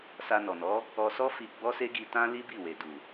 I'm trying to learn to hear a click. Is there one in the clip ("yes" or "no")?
no